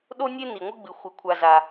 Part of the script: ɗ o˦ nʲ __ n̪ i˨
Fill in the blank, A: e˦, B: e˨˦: A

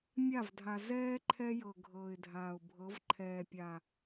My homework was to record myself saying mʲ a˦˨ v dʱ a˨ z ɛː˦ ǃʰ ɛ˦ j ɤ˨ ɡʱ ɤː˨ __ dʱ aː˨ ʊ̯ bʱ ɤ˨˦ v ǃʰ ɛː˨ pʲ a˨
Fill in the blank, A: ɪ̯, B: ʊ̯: A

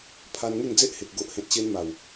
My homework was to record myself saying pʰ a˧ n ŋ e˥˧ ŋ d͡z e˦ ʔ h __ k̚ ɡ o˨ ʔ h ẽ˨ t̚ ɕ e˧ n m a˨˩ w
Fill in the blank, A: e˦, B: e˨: B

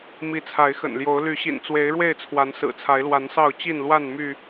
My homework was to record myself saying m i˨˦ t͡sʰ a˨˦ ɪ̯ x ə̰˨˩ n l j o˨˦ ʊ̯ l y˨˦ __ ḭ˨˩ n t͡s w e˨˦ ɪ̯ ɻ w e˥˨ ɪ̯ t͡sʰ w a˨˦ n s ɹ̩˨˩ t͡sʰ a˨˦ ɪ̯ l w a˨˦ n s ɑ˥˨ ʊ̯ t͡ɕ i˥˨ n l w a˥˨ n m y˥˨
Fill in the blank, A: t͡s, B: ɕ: B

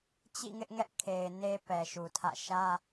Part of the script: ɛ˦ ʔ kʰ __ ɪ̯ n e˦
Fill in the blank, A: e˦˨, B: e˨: B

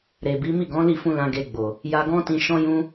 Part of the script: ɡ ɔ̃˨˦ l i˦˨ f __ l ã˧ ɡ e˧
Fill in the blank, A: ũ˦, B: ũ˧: B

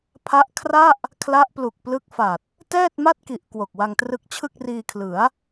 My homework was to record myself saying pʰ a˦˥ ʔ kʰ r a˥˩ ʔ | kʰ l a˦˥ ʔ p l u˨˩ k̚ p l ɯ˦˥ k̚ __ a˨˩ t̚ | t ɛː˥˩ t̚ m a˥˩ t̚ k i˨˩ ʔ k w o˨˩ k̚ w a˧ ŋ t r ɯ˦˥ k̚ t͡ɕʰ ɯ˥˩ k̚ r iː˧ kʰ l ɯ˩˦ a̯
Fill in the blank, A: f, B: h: A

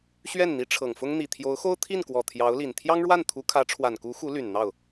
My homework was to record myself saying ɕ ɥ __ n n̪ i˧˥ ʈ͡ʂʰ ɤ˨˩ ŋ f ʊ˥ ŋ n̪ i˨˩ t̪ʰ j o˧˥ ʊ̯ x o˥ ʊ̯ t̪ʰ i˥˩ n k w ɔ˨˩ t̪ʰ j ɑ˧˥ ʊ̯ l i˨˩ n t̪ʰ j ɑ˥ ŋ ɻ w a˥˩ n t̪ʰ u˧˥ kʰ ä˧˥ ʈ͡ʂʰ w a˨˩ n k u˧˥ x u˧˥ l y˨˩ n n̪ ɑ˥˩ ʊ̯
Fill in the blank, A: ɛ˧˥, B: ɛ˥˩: B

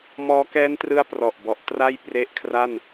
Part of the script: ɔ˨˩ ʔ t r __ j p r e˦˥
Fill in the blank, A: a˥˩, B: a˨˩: A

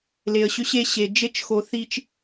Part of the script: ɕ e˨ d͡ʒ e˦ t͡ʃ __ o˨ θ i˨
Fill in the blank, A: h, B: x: B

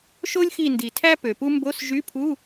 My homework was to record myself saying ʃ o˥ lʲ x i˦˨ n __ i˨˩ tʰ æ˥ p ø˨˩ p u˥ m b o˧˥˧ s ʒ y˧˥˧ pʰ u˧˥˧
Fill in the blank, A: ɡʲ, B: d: B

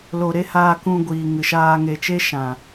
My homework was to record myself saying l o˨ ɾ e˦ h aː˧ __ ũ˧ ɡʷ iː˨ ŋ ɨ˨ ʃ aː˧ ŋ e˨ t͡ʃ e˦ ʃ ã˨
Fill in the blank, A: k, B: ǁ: A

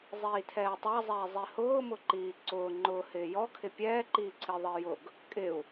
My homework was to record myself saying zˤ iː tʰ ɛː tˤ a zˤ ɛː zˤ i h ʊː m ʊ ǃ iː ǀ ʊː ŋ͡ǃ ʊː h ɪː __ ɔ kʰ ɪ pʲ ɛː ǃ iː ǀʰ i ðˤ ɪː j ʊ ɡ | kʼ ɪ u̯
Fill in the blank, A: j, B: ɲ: A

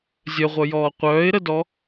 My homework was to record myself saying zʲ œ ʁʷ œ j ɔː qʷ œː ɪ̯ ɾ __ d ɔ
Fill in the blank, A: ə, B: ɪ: A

